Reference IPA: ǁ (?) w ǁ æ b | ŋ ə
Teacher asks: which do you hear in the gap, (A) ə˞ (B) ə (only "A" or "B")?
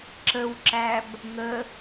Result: B